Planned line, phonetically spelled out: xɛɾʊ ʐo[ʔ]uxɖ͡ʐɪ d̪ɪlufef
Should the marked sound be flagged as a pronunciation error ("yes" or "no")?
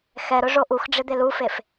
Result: no